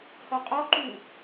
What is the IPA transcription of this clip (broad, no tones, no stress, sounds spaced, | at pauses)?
h ɔ qʼ ɔ ǃ u